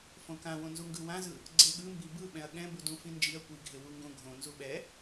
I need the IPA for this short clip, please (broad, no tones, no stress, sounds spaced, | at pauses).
f õ k ã w õ n z u ŋ ɡ ɯ w ã z ɯ | ɡ͡ǀ e ɠ ɯ m b i b ɯ ɓ ɛ̃ ɐ̯ ɠ ɛ̃ b u d ũ f ĩ n d͡ʒ i ɐ̯ kʷ i ɡʱ e w u ŋ ɡ õ ɡʱ õ n z u ɓ ɛ